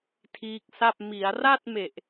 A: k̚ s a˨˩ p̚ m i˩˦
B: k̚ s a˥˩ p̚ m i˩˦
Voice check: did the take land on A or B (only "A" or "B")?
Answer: B